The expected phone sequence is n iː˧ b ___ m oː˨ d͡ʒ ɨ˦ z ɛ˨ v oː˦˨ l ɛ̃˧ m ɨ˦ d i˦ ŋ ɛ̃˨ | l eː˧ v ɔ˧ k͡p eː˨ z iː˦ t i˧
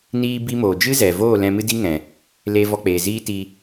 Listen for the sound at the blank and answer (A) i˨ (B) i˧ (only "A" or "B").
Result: B